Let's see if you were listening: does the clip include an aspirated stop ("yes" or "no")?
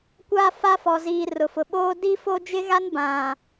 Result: no